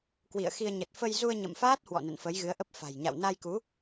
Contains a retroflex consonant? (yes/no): no